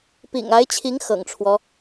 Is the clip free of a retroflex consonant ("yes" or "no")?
no